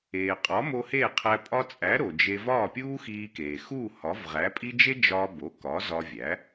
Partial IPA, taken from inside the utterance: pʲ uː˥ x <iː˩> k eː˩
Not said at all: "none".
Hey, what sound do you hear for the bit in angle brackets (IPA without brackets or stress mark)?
iː˧